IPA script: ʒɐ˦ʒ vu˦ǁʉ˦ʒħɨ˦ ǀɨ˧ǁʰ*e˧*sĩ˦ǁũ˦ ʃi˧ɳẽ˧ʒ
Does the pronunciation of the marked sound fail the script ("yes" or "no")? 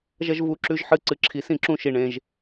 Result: yes